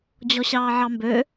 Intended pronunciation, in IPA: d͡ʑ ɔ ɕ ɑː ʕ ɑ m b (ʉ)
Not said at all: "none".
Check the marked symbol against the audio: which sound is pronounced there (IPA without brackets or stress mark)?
ø